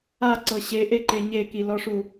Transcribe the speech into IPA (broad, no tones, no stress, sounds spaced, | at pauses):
a ǀ ɤ ɕ e ʔ e ǃ e ɲ e k i l ɔ ʂ u